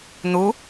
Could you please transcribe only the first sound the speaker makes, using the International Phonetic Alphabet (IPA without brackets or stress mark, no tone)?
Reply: n̪